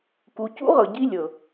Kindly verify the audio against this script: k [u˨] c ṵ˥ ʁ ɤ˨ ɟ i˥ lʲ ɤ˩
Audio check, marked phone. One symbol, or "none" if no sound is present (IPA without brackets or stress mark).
u˨